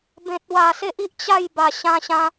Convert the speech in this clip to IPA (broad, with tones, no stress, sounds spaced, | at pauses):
b ẽ˨ t̚ w a˨˩ s e˦ ʔ i˦ ʔ t͡ɕ a˥˧ j b a˨˩ ɕ ã˧ ɕ ã˧